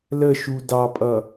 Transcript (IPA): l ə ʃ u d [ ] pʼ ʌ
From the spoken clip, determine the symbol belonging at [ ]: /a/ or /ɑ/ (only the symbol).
ɑ